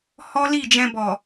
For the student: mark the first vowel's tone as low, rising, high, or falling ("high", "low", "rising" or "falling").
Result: high